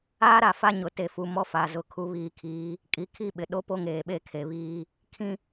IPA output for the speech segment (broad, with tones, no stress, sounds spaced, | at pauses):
aː˦ ɾ a˨ f a˦ ɲ ʊ˨ t e˨ f u˨ m ɔ˦ f a˨ z ʊ˨˦ kʰ u˨ β iː˨ kʰ iː˨˦ | kʼ i˨ kʰ i˦ ɓ ɪ˨ ɗ o˦ p o˦ ŋ eː˨ ɓ e˦ kʰ e˨ β iː˦ | kʰ ĩ˦